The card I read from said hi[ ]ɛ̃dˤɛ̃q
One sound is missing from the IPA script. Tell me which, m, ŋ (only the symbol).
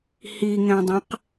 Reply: ŋ